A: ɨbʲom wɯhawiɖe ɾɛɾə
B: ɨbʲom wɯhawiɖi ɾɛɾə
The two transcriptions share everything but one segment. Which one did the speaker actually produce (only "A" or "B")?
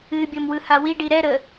B